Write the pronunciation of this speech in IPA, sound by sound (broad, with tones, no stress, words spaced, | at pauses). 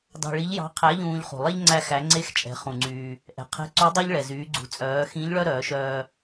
dɑ̤˧ɭi˧˥ʎjɑ̤˧˥ qʰæ˧˥ʎũː˧ʎ χṳ˩lˠe˥ʎ ŋ͡ǀæ˧xæ˩˧ŋ͡ǀe˧˥x t͡ʃʼɛ̤˩˧χũ˩ŋ͡ǀyː˩ | ʔɛ̤˩qʰɛ̤˧˥ ǀʉ˧˥dˤœ˥ʎ ɭɛ˩zyː˩˧ɡ͡ǀṳ˩˧ t͡sʼœː˩˧xĩ˧˥ʎ ɭœ˥ɾœː˩˧ʃœː˧